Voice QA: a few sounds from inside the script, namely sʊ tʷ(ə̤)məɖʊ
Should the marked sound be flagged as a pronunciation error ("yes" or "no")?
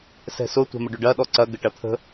yes